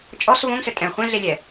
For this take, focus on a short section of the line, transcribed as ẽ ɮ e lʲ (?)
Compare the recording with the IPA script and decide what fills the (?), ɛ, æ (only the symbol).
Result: ɛ